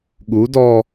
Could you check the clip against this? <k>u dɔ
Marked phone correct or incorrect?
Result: incorrect: ɠ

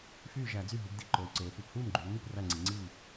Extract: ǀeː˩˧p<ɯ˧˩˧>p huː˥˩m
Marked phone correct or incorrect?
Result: correct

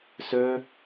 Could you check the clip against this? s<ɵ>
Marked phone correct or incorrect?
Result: correct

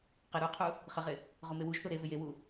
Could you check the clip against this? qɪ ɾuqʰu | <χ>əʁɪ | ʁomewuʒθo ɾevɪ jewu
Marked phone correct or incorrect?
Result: correct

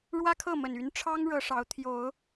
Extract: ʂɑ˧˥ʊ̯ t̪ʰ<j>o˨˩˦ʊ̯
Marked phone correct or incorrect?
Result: correct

